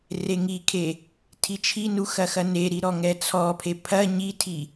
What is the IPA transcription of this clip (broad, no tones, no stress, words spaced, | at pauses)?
reŋikʰe | tʰit͡ʃʰinu xɐxɐneɾi ɾɔŋɛt͡sʰɔpʰe pʰɐ ɲitʰi